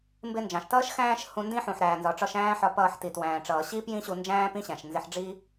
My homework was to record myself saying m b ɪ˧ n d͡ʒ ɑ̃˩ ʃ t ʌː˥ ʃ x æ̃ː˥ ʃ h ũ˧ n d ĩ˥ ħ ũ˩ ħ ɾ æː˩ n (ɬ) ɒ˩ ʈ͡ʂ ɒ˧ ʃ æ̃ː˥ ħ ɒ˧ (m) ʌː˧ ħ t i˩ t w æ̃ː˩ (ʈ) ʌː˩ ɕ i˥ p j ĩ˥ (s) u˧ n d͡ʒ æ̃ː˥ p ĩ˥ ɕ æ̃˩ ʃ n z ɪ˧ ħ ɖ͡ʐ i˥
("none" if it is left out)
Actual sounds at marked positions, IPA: z, p, ʈ͡ʂ, ɕ

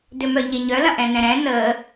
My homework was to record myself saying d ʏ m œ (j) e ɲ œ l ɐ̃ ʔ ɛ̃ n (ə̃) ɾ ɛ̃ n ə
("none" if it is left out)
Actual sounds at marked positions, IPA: ɲ, ɛ̃

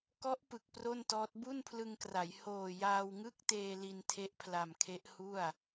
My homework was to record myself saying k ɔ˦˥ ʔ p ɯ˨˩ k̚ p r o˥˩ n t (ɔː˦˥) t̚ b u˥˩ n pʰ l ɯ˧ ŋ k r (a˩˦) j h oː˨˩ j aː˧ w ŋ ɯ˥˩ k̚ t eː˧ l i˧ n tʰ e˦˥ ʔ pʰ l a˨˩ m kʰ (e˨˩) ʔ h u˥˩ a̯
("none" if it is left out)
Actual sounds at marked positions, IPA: ɔː˦˥, a˩˦, e˦˥

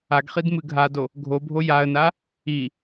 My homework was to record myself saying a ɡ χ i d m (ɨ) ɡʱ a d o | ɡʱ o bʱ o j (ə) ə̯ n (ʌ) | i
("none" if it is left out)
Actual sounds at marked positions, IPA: ɨ, a, a

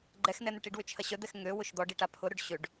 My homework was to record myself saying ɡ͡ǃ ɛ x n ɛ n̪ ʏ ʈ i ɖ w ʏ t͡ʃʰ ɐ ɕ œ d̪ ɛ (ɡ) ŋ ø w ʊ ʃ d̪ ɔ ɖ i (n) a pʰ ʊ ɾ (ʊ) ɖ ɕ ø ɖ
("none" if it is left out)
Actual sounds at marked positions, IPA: x, ʈ, ʊ

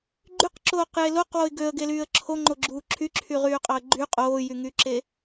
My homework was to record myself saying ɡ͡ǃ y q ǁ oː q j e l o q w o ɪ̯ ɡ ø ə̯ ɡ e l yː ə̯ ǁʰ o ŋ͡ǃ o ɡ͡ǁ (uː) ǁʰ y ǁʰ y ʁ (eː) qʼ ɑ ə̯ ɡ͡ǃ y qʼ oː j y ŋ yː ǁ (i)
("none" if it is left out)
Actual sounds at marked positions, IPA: uː, yː, e

